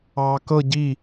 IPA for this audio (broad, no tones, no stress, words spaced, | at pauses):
ɑːkɤ ɟi